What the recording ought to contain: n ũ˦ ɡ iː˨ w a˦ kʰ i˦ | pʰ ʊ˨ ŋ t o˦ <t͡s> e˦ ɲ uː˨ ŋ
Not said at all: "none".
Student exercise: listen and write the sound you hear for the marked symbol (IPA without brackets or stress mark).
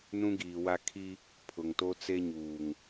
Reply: t͡s